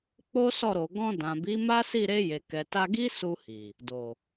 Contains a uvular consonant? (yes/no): no